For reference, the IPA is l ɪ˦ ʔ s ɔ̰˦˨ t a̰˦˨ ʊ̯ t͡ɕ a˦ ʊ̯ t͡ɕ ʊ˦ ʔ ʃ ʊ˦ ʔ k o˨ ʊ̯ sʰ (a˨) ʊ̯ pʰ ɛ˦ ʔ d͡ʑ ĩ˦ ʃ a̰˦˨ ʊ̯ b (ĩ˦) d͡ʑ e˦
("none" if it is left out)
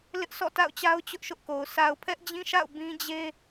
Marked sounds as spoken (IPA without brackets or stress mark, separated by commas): a˨, ĩ˦